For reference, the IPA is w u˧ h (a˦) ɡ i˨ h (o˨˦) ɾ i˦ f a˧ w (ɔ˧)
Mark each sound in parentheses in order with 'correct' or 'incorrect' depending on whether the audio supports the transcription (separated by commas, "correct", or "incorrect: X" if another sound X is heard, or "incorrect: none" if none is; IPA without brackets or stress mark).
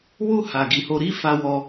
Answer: incorrect: a˨, incorrect: o˧, correct